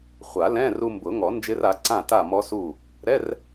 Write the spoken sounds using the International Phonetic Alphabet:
χʷ a˨˩˦ l ɛ̃˧˥˧ r u˧ m b ʊ˨˩˦ ŋ ɔ˨˩˦ n d͡ʒ ɪ˦˥ r a˩˥ ǀ ã˥˨ t a˥˨ m ɔ˦˥ s u˥˨ | ɾ ɛ˧˥˧ r

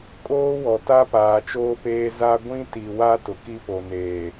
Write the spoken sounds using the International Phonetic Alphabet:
kʼ oː˦ w ɔ˨ t a˦ p aː˨ t͡ʃ oː˦ p eː˦ z a˦ ɡʷ ĩ˦ t i˨ w a˦ t ʊ˨ k i˦ p o˨ n eː˨

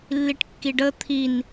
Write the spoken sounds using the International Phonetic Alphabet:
lː i ʈ kː i ɖ ə t̪ʰ i n

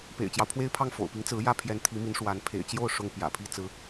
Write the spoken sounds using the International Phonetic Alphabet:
p ḛ˨˩ ɪ̯ t͡ɕ j ɑ˦ ʊ̯ pʰ w e˥ ɪ̯ pʰ ɑ˥˩ ŋ f o̰˨˩ ʊ̯ p i˧˥ ŋ t͡s ɹ̩˧˥ j ä˥ pʰ j ɛ˧˥ n t̪ʰ i˧˥ m i˧˥ n ʂ w a˧˥ n pʰ ḛ˨˩ ɪ̯ t͡ɕ j o˥˩ ʊ̯ ʂ ʊ˥ ŋ p j ä̰˨˩ pʰ i˥ t͡s ɹ̩˧˥

